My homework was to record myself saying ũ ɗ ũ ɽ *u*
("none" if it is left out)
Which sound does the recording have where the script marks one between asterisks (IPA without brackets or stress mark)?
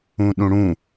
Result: ũ